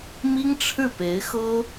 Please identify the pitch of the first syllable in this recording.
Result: high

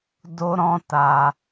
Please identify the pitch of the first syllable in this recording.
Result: high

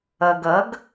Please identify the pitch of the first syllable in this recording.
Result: low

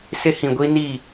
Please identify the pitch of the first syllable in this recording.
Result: high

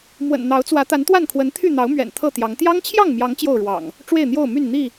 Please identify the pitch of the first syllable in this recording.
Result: low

